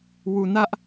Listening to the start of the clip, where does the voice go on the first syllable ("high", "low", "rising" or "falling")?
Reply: low